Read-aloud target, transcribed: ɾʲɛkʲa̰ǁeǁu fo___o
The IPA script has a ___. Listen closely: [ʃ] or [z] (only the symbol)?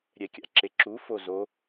z